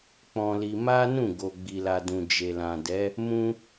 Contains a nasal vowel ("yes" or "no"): yes